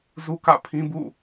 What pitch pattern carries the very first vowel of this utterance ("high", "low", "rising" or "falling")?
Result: high